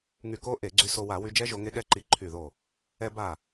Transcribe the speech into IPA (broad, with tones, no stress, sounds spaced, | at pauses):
ŋ y˧˩ k o˦˥ ʔ e˧˩˧ ɡ͡ǀ y˧ s o˧ w a˧˩˧ w y˧ d͡ʒ ɛ˦˥ ʒ o˧ ŋ e˦˥ ɠ ɛ˦˥ ǃ i˧˩ ǃʰ y˧˩ ð o˧˩ | ɛ˧ b a˧˩